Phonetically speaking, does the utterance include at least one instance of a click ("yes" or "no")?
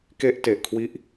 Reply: no